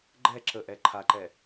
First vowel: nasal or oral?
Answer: oral